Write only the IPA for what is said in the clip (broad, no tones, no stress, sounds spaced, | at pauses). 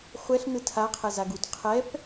χʷ ɛ ɬ n ɯ tʰ a qʰ ɛ z a ɡ u t qʰ ɛ p